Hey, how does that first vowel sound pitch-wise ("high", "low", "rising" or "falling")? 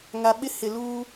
low